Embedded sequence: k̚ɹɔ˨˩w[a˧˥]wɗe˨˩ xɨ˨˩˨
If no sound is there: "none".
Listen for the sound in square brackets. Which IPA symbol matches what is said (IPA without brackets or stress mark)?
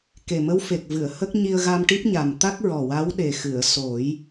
a˧˥